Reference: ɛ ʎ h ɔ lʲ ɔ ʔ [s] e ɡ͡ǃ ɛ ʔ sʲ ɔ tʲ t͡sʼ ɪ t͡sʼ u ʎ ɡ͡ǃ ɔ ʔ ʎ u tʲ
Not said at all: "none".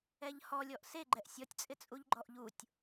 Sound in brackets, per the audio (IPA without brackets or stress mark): s